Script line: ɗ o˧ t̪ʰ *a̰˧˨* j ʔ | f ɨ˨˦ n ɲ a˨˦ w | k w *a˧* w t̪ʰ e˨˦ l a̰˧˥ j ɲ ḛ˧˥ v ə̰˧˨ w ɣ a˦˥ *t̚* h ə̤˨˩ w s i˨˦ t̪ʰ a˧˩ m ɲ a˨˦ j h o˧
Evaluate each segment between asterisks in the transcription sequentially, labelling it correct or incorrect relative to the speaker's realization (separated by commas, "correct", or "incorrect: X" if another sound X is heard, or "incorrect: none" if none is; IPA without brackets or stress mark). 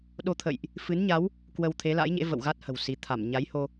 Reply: incorrect: ə̰˧˨, incorrect: ə˧, correct